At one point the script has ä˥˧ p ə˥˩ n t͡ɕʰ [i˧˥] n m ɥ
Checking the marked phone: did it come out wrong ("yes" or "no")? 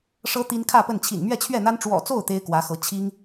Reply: yes